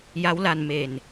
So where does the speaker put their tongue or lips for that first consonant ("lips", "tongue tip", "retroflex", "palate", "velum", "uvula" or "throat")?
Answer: palate